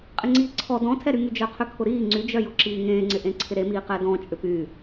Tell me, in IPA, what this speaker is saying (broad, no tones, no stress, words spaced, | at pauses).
qʼɪŋ͡ǀiːǀʰɔ dɔ̃tʰɛɾyŋy d͡ʒœqʰʏkʰʊɾiː ŋ͡ǀyd͡ʒœjʊ ǁiːŋẽːŋ͡ǀɪ ʔẽǀʰɪɾemiː qɛdɔ̃ t͡ʃʼʏpy